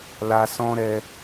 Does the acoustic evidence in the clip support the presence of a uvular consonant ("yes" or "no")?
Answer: no